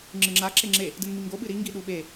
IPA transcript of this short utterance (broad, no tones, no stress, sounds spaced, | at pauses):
ŋ͡ǁ ɨ ŋ͡ǁ a ǁ e ŋ͡ǁ e | d ɨ n m i ŋ ɡ o ɓ ɨ ɾ i ŋ ɡ i ɗ u ɓ e